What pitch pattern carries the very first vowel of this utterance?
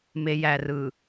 low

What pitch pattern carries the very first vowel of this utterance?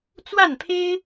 falling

